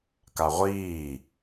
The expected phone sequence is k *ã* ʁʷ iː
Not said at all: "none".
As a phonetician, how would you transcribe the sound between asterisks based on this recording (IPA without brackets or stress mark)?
a